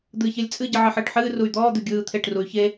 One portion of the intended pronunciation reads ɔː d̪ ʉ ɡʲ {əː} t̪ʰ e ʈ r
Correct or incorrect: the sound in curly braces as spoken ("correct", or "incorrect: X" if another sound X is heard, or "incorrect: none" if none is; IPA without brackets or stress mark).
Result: incorrect: ɯː